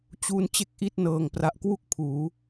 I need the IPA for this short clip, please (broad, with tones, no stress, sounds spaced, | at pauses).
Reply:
t͡ɕ u˧ n t͡ɕ e˥˩ k̚ ʔ i˥˩ t̚ n ɤː˨˩ ŋ p r a˨˩ ʔ k w u˥˩ k̚ pʰ uː˩˦